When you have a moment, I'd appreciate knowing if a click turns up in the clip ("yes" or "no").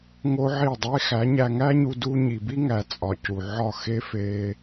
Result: no